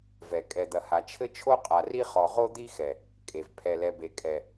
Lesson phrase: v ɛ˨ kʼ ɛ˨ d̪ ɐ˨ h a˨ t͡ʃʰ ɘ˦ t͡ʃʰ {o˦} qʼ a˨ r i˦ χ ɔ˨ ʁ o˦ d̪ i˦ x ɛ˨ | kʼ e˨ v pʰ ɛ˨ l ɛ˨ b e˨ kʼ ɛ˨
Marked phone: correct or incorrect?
correct